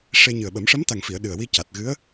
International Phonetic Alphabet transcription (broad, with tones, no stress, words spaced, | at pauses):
ʂe˧ɲɨ˨˩ə̯ɓə˨˩˦m ʂə˧˥mt̪a˨˩ŋfi˨˩˨ə̯ ɗɨ˨˩ə̯wi˧ca˨˩t̚ɣɨ˧˥ə̯